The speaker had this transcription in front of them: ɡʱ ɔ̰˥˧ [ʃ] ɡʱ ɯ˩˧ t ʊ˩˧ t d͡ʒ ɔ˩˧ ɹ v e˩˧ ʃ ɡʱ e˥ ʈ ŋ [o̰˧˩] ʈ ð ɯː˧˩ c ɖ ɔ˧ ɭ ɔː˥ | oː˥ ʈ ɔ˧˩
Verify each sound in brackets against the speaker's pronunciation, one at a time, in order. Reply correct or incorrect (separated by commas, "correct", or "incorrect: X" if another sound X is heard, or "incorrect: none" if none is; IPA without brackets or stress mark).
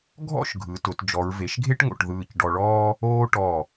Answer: correct, correct